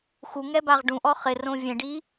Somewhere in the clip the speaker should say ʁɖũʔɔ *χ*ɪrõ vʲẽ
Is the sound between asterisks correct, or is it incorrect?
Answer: correct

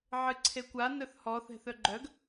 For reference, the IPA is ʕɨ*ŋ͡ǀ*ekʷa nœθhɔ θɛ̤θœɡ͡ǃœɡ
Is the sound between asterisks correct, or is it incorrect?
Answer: incorrect: ǀʰ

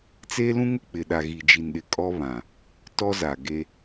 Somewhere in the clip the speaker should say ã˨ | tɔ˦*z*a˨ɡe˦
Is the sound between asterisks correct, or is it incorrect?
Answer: correct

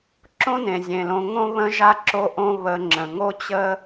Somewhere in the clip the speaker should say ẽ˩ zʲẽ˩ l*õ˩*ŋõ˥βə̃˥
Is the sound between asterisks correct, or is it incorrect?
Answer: incorrect: õ˧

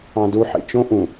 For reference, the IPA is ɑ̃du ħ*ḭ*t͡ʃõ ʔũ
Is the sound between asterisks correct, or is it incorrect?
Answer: correct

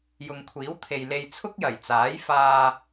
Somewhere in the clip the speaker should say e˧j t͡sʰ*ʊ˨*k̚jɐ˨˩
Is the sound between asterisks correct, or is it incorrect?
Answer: incorrect: ʊ˥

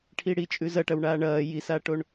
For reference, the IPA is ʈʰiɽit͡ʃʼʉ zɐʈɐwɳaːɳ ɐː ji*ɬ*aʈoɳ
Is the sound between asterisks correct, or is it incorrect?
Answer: incorrect: s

